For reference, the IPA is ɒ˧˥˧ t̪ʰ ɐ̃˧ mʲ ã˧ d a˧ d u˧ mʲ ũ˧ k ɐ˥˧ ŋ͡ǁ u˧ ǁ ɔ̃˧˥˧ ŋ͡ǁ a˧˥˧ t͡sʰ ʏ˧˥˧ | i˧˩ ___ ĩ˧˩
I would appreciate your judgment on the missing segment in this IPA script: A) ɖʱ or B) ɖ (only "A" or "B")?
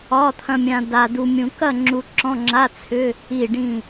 B